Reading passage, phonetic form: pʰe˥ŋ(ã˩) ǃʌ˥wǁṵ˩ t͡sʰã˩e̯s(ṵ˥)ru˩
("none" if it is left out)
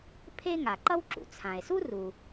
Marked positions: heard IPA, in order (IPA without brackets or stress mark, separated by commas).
a˩, u˥